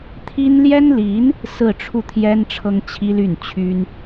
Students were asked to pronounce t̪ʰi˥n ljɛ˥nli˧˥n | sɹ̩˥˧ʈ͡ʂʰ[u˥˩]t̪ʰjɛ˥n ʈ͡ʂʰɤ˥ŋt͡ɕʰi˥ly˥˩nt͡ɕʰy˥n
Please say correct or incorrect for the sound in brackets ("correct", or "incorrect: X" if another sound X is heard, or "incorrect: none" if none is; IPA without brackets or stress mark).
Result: correct